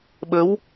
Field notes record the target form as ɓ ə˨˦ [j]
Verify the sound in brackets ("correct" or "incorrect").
incorrect